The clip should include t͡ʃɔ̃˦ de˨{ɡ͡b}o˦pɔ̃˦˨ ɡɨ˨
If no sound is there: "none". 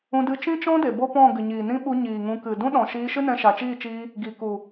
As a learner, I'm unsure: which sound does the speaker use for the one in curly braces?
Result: b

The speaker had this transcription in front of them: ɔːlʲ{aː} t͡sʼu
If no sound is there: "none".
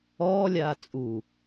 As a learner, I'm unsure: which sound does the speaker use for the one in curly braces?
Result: aː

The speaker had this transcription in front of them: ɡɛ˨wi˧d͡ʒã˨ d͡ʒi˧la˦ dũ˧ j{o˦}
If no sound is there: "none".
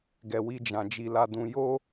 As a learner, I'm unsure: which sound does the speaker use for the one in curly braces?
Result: o˦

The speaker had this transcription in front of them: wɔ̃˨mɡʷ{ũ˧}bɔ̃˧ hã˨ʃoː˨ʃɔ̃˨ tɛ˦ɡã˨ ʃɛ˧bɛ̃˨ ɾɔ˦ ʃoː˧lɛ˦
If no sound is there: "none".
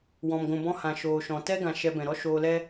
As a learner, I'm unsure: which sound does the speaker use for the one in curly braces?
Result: ũ˨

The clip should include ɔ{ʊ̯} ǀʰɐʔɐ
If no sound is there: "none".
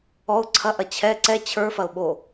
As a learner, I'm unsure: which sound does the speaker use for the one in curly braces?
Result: ʊ̯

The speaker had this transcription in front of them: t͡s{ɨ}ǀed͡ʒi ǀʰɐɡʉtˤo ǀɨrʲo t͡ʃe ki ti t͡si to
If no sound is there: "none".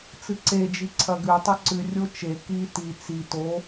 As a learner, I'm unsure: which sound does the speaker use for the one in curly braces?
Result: ɨ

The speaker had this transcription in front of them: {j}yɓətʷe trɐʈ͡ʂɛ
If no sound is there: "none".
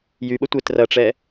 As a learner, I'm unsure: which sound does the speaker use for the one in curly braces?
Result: j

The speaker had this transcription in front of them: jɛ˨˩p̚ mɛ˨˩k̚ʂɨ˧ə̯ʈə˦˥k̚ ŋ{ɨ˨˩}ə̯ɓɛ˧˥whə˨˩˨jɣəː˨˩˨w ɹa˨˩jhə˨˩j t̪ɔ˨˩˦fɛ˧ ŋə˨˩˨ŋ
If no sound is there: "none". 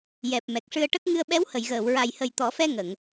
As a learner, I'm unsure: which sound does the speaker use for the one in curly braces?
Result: ɨ˧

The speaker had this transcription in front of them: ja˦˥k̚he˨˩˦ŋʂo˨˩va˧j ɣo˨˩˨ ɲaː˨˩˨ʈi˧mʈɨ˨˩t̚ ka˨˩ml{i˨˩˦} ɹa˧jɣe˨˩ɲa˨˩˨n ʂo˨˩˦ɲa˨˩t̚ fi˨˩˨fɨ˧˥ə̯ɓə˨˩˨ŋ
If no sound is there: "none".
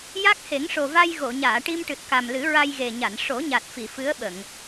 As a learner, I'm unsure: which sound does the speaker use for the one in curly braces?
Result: ɨ˨˩˦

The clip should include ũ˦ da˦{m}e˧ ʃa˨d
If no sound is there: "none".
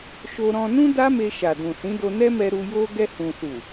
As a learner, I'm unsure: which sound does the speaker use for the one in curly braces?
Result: m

